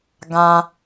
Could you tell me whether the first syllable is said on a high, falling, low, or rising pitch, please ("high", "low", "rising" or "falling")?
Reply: low